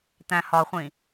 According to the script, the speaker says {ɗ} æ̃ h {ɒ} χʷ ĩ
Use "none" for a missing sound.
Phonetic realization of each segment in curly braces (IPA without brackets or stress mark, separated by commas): t̪, ɒ